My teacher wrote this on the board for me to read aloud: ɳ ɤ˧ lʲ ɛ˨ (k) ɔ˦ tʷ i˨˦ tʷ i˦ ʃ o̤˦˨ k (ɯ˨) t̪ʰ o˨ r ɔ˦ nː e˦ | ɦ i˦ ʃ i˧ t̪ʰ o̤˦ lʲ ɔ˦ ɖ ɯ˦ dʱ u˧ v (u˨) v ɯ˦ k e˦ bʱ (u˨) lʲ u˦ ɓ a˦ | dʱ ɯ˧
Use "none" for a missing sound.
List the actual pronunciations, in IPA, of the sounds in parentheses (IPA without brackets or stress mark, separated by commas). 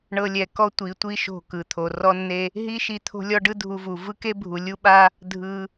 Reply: k, ɯ˨, u˨, u˨